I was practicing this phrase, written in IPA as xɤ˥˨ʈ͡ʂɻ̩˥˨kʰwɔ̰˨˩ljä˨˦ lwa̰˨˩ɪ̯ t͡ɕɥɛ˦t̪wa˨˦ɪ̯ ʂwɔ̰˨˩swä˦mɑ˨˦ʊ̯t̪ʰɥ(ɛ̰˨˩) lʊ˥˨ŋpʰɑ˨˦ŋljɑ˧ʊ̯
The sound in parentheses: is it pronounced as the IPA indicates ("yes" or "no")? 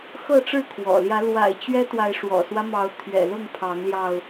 yes